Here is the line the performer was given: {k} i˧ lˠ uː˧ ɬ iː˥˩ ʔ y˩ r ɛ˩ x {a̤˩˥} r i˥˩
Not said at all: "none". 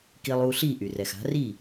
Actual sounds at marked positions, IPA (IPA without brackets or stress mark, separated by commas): k, a̤˩˥